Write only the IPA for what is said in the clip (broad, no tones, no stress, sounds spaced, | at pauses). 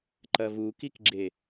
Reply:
ǃ ɐ v u k i k ɡ͡ǁ e